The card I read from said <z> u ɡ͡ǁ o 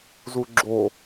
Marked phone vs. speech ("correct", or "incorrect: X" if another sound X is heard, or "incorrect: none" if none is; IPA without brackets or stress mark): correct